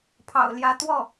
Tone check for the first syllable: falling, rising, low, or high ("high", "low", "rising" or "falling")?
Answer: low